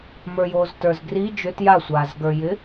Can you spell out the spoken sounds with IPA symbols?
mə˞joːztə˞zɡri d͡ʒʏt jasʷaːzɡə˞jɪ

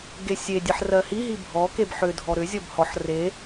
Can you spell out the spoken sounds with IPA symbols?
ɡesʲe dʲeħrɜhi ɦibʱɔkeb ħʏdʱɔ ɾʏzʲɔb hɔħ re

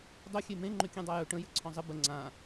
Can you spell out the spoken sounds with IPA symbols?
dˤɵ xʲemẽ ŋ͡ǃʏkʲɛ̃dˤajɵ ʈə̃ jəǀʰɔ̃zˤɪ bə ŋ͡ǀã

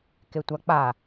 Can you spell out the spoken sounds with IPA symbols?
ketʷak͡pa

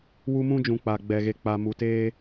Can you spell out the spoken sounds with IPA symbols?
wu˦mũ˦d͡ʒũ˨ k͡pa˨ ɡ͡bɛ˨ɣe˨k͡pa˨ mu˨teː˦

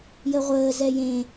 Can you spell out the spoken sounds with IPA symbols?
jəʁʷəː zɛjẽ

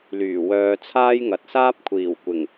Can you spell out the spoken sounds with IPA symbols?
lyː˨˩wœː˧ t͡sʰaː˥jŋɐ˨t̚ saː˥p̚kʷʰiː˨˩w kʷɪ˨˩ŋ

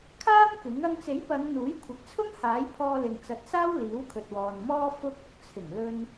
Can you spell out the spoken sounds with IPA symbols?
kʰaː˥m kɪ˨˥ŋ ɐ˧ŋt͡se˨˥jpɐ˨˧ŋ n̪uː˨˥jkʷʰɐ˨˥k̚t͡sʰʊ˥ŋ haː˨˥j pʰɔː˧lɪ˨ŋ t͡sɐ˨˥t̚saː˥w liː˨˥wkʰɵ˨t̚wɔː˨nmɔː˥ fʊ˧k̚ ʊ˨k̚t͡sʰɪ˨˩ŋlɵ˧n

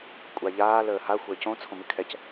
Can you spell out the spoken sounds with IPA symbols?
kʷʼaʎaːl əːha xʷəːcõ t͡sʰõmɨkʰɛc

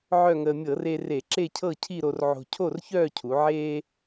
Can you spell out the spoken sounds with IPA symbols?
ʕœ˥˧ŋəː˧ mʲɤ˧˩˧re˧re˧˩˧ ǁe˥˧cʰɤ˥˧ cʰi˥˧ɾo˧r ʕo̤˧ cʰo˥˧rçœː˥˧cʰu˩˧ ʕeː˧

